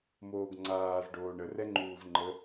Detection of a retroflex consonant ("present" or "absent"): present